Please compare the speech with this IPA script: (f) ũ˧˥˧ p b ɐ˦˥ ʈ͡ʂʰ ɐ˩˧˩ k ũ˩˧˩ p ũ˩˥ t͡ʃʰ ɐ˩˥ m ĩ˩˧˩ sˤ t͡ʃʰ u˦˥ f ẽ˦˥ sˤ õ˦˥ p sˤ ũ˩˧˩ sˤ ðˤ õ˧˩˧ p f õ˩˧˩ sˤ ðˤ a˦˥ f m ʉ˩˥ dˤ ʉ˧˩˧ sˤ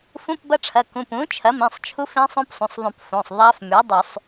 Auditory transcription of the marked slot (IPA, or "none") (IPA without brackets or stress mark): f